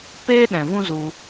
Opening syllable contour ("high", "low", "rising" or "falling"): high